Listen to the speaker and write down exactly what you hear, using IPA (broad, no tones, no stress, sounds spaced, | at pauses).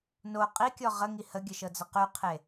n o qʼ i kʲ ɔ ʁ ə ŋ i h ə ɡʲ ə ʃ ɤ d͡z ə q y qʰ e